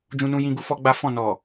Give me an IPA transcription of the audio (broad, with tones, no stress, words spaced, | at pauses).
d͡ʒũ˧nũ˧ jĩ˦ɡu˦ fɔ˦ɡ͡ba˦fɔ̃˦˨ nɔ˨